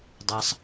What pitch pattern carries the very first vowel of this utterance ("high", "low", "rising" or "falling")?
low